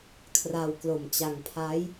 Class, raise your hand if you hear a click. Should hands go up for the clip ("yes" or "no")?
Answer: no